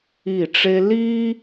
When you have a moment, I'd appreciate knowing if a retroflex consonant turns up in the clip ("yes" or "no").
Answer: yes